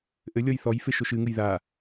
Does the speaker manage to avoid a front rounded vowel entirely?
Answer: yes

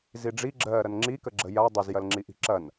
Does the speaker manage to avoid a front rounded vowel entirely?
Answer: yes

